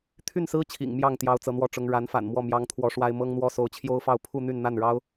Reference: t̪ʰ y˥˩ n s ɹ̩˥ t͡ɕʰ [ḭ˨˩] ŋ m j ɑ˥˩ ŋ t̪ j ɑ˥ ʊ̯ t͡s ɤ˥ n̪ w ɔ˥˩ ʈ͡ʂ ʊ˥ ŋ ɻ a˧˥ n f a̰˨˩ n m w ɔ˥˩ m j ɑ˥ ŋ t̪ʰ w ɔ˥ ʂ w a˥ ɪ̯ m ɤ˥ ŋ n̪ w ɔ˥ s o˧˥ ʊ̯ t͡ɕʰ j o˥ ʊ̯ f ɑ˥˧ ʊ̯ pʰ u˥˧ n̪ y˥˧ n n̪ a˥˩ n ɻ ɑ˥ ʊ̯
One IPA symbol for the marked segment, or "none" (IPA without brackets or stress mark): ḭ˨˩